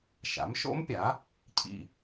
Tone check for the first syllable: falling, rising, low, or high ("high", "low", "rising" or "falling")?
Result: rising